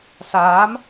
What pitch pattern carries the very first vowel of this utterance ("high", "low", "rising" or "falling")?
rising